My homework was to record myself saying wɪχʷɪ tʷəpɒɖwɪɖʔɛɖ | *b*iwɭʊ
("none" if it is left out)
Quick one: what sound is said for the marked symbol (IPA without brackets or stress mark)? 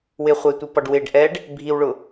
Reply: bʱ